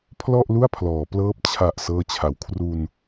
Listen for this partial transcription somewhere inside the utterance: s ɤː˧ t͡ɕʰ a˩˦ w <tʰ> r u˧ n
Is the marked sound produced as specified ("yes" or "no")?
no